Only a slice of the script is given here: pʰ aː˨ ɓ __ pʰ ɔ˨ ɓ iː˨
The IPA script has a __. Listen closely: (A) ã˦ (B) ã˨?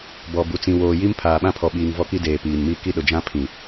A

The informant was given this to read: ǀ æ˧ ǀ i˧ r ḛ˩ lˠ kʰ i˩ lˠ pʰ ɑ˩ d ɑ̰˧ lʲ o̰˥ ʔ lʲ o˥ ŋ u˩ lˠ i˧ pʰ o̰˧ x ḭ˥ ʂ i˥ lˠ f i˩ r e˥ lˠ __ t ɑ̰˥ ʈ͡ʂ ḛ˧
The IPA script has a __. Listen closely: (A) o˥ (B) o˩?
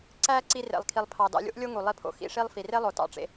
B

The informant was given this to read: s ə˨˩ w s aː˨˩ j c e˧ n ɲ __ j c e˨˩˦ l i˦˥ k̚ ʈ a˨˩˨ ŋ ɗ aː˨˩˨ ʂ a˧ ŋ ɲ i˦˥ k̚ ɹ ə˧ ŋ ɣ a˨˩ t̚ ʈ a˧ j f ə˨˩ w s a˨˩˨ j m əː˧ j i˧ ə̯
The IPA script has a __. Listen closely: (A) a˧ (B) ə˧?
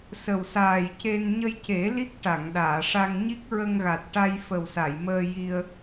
B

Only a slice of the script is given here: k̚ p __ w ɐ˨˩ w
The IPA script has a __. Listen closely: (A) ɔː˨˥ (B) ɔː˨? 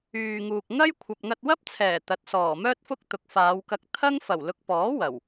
A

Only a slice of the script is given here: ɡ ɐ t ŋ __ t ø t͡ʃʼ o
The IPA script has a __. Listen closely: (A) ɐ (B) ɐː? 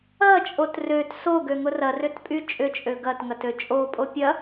A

